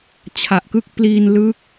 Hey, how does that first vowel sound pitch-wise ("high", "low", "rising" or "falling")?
low